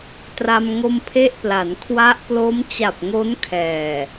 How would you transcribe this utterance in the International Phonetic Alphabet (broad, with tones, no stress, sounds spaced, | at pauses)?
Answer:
t r a˧ m ŋ o˧ m pʰ e˥˩ ʔ p l a˩˦ n kʰ w a˦˥ ʔ p l o˦˥ m t͡ɕ a˨˩ p̚ ŋ o˦˥ n kʰ ɛː˨˩